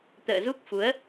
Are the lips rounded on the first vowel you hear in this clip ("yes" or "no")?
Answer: no